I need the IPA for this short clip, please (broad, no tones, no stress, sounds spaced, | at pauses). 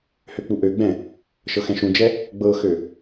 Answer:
h ø k͡p u ʔ ø ɡ͡b ɛ̃ | ʃ ɤ x ɛ̃ ʃ ũ d͡ʒ ɛ | ɡ͡b ɤ x ø